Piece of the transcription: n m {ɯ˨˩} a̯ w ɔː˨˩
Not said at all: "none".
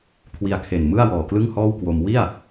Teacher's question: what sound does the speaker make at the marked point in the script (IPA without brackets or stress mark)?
ɯ˥˩